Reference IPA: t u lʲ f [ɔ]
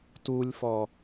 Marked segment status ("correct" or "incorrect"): correct